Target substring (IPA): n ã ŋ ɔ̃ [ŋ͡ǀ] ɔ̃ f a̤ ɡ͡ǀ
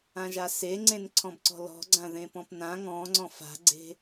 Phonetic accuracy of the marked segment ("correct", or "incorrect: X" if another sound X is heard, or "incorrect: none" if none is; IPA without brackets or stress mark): correct